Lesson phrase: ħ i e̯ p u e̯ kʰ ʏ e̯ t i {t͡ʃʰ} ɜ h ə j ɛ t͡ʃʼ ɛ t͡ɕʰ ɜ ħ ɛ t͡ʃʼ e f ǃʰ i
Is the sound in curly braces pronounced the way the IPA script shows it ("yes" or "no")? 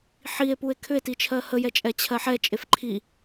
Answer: yes